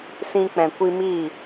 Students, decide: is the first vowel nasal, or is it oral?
nasal